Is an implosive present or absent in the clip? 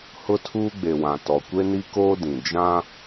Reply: absent